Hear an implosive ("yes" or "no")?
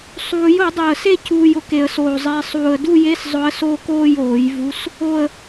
no